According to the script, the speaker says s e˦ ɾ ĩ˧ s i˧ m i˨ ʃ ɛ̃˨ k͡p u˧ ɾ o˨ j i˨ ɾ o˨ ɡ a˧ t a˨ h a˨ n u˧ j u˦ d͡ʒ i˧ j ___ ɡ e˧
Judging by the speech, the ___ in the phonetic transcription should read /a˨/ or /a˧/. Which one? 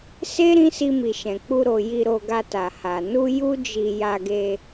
a˧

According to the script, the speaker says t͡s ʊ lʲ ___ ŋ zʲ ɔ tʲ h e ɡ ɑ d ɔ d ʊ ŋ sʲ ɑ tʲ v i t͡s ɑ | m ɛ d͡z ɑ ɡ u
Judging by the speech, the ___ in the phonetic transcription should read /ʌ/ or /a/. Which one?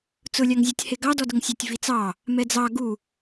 a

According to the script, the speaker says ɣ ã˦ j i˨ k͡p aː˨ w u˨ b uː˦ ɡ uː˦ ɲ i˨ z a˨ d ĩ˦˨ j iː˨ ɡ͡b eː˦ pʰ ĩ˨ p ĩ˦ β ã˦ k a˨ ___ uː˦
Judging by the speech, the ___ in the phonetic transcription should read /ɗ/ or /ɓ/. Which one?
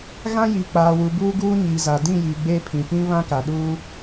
ɗ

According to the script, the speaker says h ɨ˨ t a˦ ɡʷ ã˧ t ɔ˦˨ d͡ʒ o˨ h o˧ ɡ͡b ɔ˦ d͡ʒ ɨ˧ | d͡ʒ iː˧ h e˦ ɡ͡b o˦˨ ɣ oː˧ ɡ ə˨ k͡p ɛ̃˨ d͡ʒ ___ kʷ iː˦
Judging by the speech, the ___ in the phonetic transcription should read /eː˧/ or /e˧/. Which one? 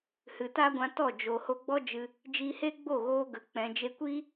e˧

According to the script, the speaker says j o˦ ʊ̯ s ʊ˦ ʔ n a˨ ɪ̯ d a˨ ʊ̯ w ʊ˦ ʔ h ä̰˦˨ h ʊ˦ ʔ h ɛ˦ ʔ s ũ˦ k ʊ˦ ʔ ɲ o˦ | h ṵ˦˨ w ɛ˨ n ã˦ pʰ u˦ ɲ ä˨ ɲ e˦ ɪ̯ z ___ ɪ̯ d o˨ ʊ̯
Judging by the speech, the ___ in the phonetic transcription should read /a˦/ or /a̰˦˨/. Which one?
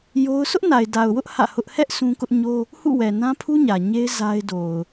a˦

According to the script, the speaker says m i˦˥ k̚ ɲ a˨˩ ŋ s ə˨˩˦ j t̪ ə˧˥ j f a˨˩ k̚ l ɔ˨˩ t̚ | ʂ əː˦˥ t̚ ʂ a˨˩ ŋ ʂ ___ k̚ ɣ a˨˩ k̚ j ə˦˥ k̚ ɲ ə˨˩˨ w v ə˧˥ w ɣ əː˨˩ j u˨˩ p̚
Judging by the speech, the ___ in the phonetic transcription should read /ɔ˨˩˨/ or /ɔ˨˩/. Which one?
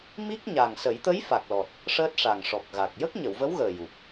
ɔ˨˩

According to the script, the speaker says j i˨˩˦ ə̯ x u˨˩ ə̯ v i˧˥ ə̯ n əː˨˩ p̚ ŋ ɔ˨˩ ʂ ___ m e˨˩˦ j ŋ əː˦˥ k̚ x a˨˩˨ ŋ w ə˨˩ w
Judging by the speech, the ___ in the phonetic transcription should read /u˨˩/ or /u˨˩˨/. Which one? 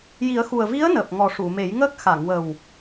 u˨˩˨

